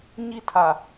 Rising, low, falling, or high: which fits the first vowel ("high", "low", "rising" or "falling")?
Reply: falling